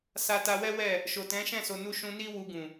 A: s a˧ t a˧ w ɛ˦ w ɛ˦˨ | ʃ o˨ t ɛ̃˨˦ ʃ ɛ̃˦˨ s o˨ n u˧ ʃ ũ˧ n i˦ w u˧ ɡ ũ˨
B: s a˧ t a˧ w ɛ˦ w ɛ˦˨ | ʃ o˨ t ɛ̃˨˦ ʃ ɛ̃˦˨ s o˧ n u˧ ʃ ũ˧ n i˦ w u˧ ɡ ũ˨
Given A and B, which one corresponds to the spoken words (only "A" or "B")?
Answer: A